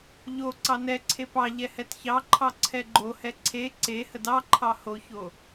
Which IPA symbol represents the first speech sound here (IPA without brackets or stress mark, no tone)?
ʎ